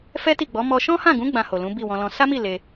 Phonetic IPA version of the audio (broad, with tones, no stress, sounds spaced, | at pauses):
f ɛ˦ t i˦˨ ɡ͡b ɔ˨˦ m ɔ˧ ʃ ɔ̃˦ h ã˦˨ ɡ ũ˨˦ ɡ͡b ã˧ h o˨ l ũ˨˦ b i˦˨ w ɔ̃˧ l ɔ̃˧ s a˦ m i˦˨ l e˧